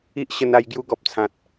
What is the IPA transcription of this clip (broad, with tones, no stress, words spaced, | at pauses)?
i˦ʔɕə˧na˧j ɡju˧ɡɔ˨p̚t͡sʰã˨t̚